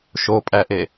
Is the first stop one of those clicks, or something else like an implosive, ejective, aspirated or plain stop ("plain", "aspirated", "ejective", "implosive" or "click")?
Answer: ejective